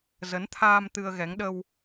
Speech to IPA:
z ə˨˦ n t̪ʰ aː˧ m t̪ ɨ˧ ə̯ ɣ ɛ˨˦ ŋ ɗ ə˧ w

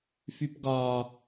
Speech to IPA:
f y p ɡ ɒ

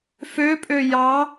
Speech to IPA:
f ø pʼ ø j ɑ

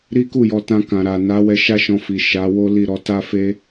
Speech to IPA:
ɾ i˦ k u˦˨ j ɔ˧ t ã˧ k ã˨ ɾ a˨ n a˨˦ w ɛ˧ ʃ a˦ ʃ ɔ̃˧ f i˨ ʃ a˨˦ w o˦ l i˦˨ ɾ ɔ˨˦ t a˧ f e˧

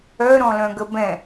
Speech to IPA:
œ ɾ ɔ̃ l œ̃ ɡ ə b ɛ̃

